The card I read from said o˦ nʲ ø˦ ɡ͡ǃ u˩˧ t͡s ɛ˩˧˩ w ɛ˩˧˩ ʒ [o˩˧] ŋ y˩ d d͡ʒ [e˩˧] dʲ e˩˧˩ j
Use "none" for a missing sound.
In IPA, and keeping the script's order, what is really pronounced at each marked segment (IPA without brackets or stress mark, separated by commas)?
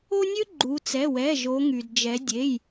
o˩˧, ɛ˩˧